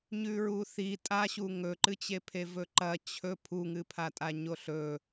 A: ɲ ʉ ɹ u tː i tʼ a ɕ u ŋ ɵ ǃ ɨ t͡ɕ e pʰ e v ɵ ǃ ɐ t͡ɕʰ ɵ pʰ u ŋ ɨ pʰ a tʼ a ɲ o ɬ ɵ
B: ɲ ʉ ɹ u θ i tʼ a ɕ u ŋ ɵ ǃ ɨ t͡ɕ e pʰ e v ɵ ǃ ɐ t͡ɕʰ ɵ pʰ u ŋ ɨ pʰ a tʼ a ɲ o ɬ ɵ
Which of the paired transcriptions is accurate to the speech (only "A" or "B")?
B